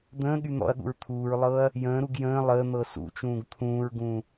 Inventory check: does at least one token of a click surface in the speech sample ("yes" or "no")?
no